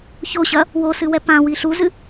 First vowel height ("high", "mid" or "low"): mid